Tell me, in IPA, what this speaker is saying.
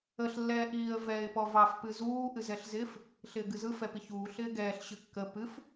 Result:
əɬ lːɛːʔiːə̯ vɛːɪ̯pɔvɑf pɨzuː ʔɨzɛɬzɪf | ɬɪːɡɨzɯ fɛpiçuː ɬɪːɡɛːɬ ɕɨkːə pɨf

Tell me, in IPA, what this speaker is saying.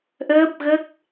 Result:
ʔəː˦˥p̚ɣə˦˥k̚

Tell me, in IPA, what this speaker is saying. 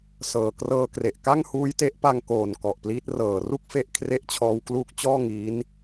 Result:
sɤː˨˩krɤː˧kre˨˩ʔ ka˥˩ŋhuː˦˥jte˦˥ʔpa˧ŋ koː˨˩n kɔ˨˩ʔpliː˦˥t̚ rɤː˨˩ru˥˩k̚fe˦˥ʔ kʰre˦˥ʔt͡ɕʰɔː˦˥wkluː˦˥k̚t͡ɕɔː˥˩ ŋi˦˥n

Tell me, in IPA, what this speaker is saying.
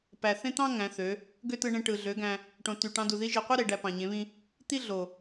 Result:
pæ˨θẽ˦t̪ɑ̃˦ ŋæ̃˨˦θø˨˦ | ɡø˦tɯ˧ɳẽ˧ ʈɯ˨ɮø˨˦ɡæ̃˧ | ʈõ˨ ty˨ ʈɑ̃˧du˨ði˦ ʒi˨qʷi˦ɾe˨ ɖæ˧pɑ̃˨ɲẽ˨˦βĩ˦ | t̪i˦ɮo˨

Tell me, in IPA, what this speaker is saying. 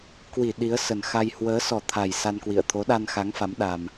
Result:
kwi˧˩ ɗi˨˦ə̯sə˨˩n xa˧j hwəː˨˦sɔ˨˩t̪ʰa˨˩j sa˧nkwḭ˧˨ə̯ t̪ʰo˨˦ɗa˧nxa˨˦ŋfa˨˦m ɗa˧m

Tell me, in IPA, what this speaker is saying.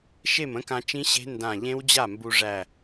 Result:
ʃe˥˩mə̃˦˥kã˧t͡ʃĩ˦˥ ɕe̤˦˥ ndã˧˩ ʎẽ˦˥wd͡ʑa˥˩mbu˧ʐæ˧˩

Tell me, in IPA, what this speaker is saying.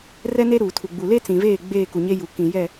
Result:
rɛ˦ne˦ɾuː˨tʰu˨ ɡ͡bu˨le˦t͡sĩ˨veː˦˨ ɡ͡beː˦˨ku˨ɲe˦ ju˨ kĩ˨jɛ˦˨

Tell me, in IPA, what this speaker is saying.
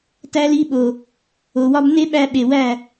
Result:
tæ˧li˧ɓo˨ | o˨wɒ˦b ne˦ɓæ˧ ɓe˨wæ˦˨

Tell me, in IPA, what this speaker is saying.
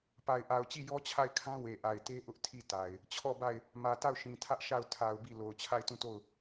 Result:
pa˨ɪ̯ʔa˨ʊ̯t͡ɕi˦˨ jɔ˦t͡ɕʰa˦˨ɪ̯kʰã˦ we˨ʔa˨ɪ̯te˦ ʔʊ˦ʔ tʰi˦˨ta˨ɪ̯ | t͡ɕʰɔ˦˨ba˦˨ɪ̯ | mä˨ta˦˨ʊ̯ʃĩ˨tʰä˦ʔ ʃa˦˨ʊ̯ tʰa˨ʊ̯ bi˦˨ lo˨ʊ̯t͡ɕʰa˦˨ɪ̯tũ˦˨to˦˨ʊ̯

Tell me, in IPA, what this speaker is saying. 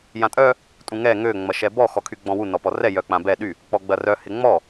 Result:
jãtʼœ | tʼũŋɛ ŋø ŋ͡mɐʃɛbɔ xɔkʰyɡ͡bɔ̃wu nɔpɔrɛ jœk͡pãbɛ ɗy | k͡pɔɡ͡bɐrœ hɪŋ͡mɔ

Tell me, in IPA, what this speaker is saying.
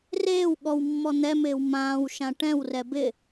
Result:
reːw ɠɔwmːɔ n̪ɛmɪːw mãːwʃã ʈɛ̃wrɛ bɪ

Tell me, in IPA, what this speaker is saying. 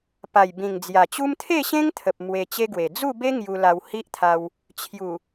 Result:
pa˨˩jbĩ˨˩ŋd͡zja˨˩t͡ɕu˦m t̪ʰe˥˧ɕẽ˦ŋt̪ʰə˨p̚ mwe˧t͡ɕe˦ɡwe˨˩ d͡zu˥˧be˦ ŋju˧la˧whi˦ʔt̪ʰa˧w | t͡ɕʰju˨˩

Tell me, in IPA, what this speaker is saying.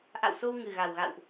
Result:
ʔa̰˧˨wso˧w ŋɨ˨˩ɣa˨˩wɣa̰˧˨wʔ

